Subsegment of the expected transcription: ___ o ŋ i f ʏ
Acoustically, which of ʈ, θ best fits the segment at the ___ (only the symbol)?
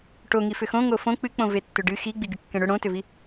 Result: ʈ